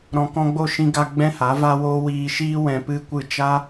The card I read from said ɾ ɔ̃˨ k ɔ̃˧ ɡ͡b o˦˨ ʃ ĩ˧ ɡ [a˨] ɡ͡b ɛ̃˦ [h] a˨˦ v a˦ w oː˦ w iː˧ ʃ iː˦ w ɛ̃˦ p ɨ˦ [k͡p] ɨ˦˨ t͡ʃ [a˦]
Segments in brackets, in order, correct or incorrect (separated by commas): incorrect, correct, incorrect, correct